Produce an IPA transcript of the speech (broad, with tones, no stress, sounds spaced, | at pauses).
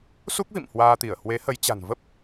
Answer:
s u˦˥ k̚ v ḭ˧˨ m h w aː˧ t̪ i˧˩ ə̯ h w e˨˦ h ə˨˦ j t͡ɕ a̤˨˩ n v ə˦˥ p̚